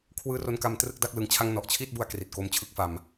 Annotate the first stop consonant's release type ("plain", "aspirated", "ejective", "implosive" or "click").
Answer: aspirated